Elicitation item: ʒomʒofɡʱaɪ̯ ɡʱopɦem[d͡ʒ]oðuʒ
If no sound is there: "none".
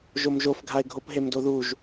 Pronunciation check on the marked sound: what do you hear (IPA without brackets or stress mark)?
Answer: d